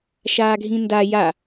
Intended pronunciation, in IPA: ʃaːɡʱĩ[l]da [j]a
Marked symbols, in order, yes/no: no, yes

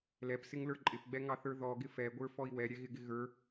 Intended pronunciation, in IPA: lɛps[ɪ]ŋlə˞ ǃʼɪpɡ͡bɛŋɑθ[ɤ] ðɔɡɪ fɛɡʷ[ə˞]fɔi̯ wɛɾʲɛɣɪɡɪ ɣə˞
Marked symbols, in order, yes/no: yes, no, yes

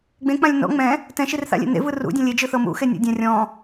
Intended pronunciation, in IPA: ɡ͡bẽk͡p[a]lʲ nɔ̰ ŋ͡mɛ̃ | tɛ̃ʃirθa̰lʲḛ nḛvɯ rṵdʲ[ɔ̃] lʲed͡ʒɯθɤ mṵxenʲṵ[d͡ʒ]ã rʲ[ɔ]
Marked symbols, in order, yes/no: no, yes, no, no

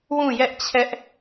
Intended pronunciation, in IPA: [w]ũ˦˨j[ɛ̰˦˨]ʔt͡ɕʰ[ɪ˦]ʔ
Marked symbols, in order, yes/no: yes, no, no

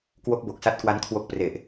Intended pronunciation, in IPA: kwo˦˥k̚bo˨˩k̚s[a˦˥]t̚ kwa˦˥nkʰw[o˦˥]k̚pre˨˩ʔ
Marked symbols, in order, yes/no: yes, yes

